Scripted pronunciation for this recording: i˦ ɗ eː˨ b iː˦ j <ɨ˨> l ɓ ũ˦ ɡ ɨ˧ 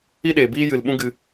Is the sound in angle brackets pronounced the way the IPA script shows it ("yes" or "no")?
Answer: yes